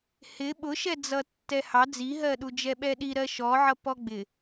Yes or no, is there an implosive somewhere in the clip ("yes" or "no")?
yes